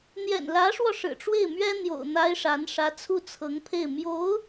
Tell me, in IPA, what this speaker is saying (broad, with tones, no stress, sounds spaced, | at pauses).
n̪ j ɛ̰˨˩ n l ä˧˥ ʂ w ɔ˧ ʂ ɻ̩˨˩ ʈ͡ʂ w e˥˩ ɪ̯ m ɥ ɛ˥ n̪ j o̰˨˩ ʊ̯ n̪ a˥ ɪ̯ ʂ a˧˥ n ʂ ä˧˥ t͡sʰ u˥˩ t͡sʰ ɤ˧˥ ŋ pʰ e˥˩ ɪ̯ m j o˧˥ ʊ̯